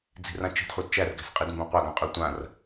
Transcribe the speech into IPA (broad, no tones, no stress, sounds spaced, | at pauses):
d͡z i̤ r ã t͡ʃ i̤ d χʷ a d t͡ʃ æ r ɡ æ̤ s qʼ i d m b ɛ̃ qʷ a ɡ ã qʼ ø tʷ ã r